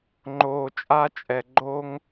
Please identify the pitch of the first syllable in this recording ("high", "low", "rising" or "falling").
low